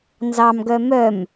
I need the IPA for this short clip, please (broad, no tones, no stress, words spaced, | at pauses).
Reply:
nzɑmɡœ mœm